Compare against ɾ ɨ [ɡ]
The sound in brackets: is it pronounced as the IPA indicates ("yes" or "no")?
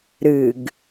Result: yes